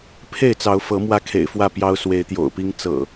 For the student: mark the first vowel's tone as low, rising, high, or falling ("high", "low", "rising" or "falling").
falling